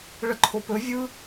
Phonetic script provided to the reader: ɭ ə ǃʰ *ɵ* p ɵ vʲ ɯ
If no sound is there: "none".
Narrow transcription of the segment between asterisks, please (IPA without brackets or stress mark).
o